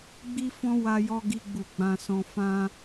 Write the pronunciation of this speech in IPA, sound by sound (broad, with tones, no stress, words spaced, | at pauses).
ɡ͡bi˦fɔ̃˦ wa˦jɔ˦ɡi˦ɡ͡bu˦˨ ɡ͡bã˧sɔ̃˧ fã˦